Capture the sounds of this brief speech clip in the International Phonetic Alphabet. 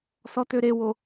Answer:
s ɔ t ø ɾ e w o

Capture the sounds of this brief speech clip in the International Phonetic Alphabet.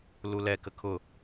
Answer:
l u l ɛ k ə kʰ ʊ

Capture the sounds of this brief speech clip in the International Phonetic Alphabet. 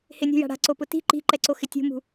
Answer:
h ɪ nʲ ṳ j a̤ ɽ a̤ ǀ o p ʊ t i̤ ǃ i̤ ǃ ɛ ǀ o x ɪ tʲ ṳ m ṳ

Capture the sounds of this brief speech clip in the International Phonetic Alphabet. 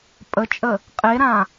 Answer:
pʼ ə t͡ʃʼ ə | qʼ e ɾ ã

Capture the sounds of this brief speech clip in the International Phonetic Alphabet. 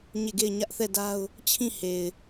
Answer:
ɲ e˦˨ ɡ e˦˨ ɪ̯ ɲ ä˦ ʔ θ ɛ˦˨ d a˦ ʊ̯ | t͡ɕʰ ĩ˦˨ h e˨ ɪ̯

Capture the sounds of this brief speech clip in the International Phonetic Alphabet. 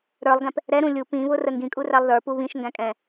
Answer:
ɾ ə˞ lˠ ɡ ɛ̃ p | ɾ ɛ ɾ ũ lʲ u p ĩ β ʊ r ə ŋ ɡ ĩ kʼ u r æ lˠ ð ə˞ p u β ĩ ʃ ŋ ɡ æ̃ kʼ ɛ̃

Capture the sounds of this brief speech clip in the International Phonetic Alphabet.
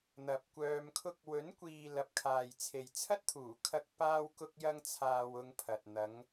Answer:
n̪ ɐ˨ p̚ kʷ œː˧ m kʰ ʊ˥ k̚ w ɵ˨˥ n kʷ iː˨ l ɐ˨ p̚ kʰ aː˨ j t͡sʰ e˨ j t͡sʰ ɐ˥ t̚ t̪ʰ uː˨˩ kʰ ɐ˧ k̚ p aː˥ w k ʊ˥ k̚ j ɐ˥ ŋ t͡sʰ aː˧ w ʊ˧ ŋ pʰ ɐ˨ t̚ n̪ ɐ˨˧ ŋ

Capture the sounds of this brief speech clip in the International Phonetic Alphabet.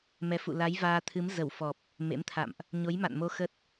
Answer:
m ɛ˨˦ f ṵ˧˨ l a˨˦ j v aː˧ t̪ʰ ɨ˨˦ m z ə˧˩ w f ɔ˨˩ p̚ | m ḛ˧˥ m t̪ʰ a̰˧˨ m ʔ | ɲ o˨˦ j m a̰˧˨ n m o˧ x ə˦˥ t̚

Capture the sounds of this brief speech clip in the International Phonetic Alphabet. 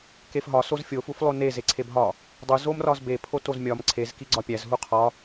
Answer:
k e f ɦ ɒ s o z fʲ o f u f lˠ o n e z e ǀʰ e b ɦ ɒ | dˤ u z o m r ɒ z b e pʰ o t o z mʲ ɒ m ǀʰ e z k i ɡ͡ǀ ɒ pʲ æ z ɦ u qʰ ɒ

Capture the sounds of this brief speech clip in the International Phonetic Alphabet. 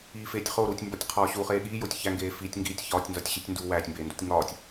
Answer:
iː f eː tʲ χ o ɾ uː tʲ m b ɒ tʲ qʰ ɒː ɕ u χ eː ɠ iː j o tʲ ç æ ŋ ɡ eː f i tʲ ŋ ɡ iː tʲ ç ɒː tʲ n z ɒ tʲ ɕ i tʲ n d u w æː tʲ m b eː n d u tʲ ŋ ɒː tʲ

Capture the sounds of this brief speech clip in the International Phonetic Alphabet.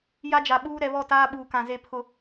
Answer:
j a˦ d͡ʒ a˨ ɓ uː˦ ɾ ɛ˨ β ɔ˦˨ t aː˦ ɓ uː˨ k ã˨ z e˦˨ pʰ ʊ˦

